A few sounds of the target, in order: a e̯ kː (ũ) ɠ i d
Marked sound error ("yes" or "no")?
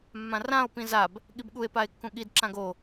no